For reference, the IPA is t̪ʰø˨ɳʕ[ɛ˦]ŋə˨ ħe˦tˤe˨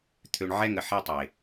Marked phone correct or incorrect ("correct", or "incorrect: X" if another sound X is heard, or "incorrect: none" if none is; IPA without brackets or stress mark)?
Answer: correct